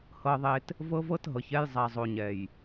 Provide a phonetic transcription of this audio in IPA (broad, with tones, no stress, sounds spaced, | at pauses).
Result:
h ɤ˨ ðˤ e˨ t | v ɤ˦ v ɤ˦ t ɦ ɤ˨ ç ɛ˦ j zˤ a˨ zˤ o˨ ɲ ɛ˨ j